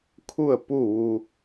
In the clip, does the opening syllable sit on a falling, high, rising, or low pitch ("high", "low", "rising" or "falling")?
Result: falling